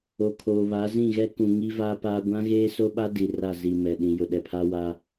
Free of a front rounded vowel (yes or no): yes